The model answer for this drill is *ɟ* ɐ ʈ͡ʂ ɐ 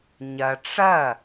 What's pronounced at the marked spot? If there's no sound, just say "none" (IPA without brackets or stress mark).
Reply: ɲ